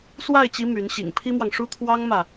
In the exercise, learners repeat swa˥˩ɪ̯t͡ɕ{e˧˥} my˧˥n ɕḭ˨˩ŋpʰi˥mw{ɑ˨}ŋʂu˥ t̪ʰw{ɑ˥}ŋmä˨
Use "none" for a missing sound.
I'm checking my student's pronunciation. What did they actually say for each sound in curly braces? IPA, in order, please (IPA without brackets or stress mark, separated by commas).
i˧˥, ɑ˨, ɑ˥